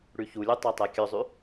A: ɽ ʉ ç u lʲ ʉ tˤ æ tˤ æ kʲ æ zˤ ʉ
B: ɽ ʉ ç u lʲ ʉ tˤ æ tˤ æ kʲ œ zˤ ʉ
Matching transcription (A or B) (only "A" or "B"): B